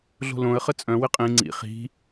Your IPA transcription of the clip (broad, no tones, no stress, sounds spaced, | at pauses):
ɮ o̤ l õ ə̯ χ ə t͡sʼ œ̃ w ɪ qʼ ĩ ŋ͡ǀ ḭ χ i̤